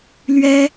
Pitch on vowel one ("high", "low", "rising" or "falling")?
high